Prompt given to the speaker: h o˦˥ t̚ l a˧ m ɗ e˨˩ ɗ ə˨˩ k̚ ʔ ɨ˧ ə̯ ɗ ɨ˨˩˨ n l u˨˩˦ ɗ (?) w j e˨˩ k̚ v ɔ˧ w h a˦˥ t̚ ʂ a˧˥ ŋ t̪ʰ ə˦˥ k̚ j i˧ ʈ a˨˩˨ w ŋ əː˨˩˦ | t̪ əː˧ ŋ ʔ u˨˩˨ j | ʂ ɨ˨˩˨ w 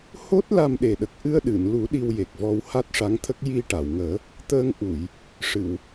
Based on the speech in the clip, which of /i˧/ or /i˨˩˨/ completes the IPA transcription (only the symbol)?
i˧